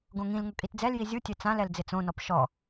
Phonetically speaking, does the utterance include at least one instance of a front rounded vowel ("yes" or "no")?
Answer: no